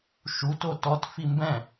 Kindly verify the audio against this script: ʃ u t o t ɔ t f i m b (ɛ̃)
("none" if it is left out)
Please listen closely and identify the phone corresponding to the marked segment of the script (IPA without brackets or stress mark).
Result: ɛ̃